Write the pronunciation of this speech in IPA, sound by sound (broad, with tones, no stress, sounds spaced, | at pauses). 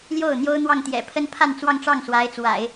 l j o˥˩ ʊ̯ n̪ j o˥ ʊ̯ n̪ w ɑ˥˩ ŋ t̪ j ɛ̰˨˩ pʰ ə˥ n pʰ a˥˧ n t͡s w ɑ˥˧ ŋ ʈ͡ʂ ɑ˥˩ ŋ s w a˧˥ ɪ̯ t͡s w a̰˨˩˦ ɪ̯